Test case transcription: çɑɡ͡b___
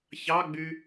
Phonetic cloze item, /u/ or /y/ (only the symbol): y